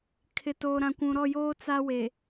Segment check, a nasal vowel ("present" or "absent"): present